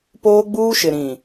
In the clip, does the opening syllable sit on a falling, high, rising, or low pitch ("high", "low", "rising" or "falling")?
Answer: high